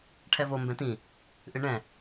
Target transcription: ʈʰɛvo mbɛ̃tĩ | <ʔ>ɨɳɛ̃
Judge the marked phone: correct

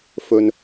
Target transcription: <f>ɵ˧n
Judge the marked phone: correct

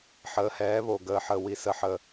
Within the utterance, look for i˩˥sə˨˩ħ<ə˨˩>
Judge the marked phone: correct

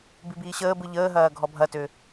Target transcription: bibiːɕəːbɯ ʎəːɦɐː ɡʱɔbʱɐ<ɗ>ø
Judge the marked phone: incorrect: t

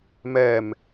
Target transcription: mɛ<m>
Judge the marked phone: correct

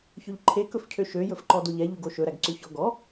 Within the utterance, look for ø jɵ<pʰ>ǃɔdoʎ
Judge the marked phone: incorrect: f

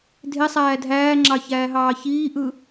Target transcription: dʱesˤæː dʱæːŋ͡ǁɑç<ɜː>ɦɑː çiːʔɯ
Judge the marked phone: incorrect: æː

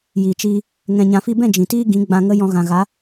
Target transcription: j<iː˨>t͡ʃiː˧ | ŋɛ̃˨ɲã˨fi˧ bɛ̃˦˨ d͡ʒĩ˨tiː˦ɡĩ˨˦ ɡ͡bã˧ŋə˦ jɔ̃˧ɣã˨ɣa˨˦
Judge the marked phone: correct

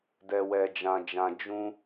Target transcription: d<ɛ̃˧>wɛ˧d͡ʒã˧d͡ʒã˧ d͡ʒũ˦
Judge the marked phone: incorrect: ɛ˧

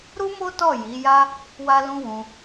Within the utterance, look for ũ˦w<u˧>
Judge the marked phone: incorrect: ũ˧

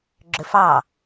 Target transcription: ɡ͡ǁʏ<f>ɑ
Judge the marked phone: correct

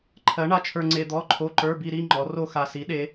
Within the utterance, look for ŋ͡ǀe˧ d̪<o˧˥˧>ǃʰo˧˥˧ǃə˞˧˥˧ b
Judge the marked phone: incorrect: ɔ˧˥˧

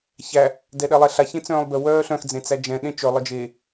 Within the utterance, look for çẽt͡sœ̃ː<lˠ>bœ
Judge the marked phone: correct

